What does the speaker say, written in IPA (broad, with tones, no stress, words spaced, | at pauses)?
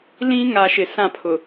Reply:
lĩ˦ŋa˨ ʃɪ˨sã˦˨pʰʊ˨